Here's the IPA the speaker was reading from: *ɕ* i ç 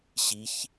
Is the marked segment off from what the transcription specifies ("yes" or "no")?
no